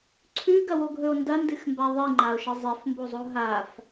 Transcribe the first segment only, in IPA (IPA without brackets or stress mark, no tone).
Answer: ǀʰ